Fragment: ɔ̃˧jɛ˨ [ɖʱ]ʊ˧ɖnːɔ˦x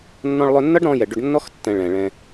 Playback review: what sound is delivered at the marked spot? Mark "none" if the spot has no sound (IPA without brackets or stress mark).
ɖ